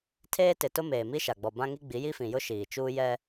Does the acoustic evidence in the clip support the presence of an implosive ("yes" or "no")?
no